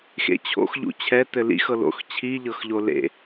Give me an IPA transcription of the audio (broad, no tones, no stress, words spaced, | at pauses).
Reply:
xḛt͡ɕʰo̰x ʎṵt͡ɕʰɛ tɘlḭx ɤlo̰x t͡ɕʰi ʎɤxʎolḛ